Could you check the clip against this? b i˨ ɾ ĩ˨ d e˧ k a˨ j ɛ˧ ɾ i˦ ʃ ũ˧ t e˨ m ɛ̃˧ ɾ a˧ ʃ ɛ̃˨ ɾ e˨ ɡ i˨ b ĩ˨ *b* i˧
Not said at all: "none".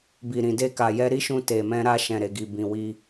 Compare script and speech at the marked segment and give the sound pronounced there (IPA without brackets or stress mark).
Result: w